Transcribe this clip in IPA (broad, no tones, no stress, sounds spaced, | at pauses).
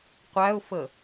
qʷ æ ʊ̯ f ə